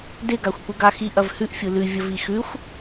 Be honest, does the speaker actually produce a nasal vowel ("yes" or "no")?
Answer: no